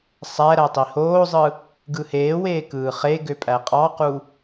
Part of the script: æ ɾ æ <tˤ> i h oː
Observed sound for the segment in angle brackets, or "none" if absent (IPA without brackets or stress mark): tˤ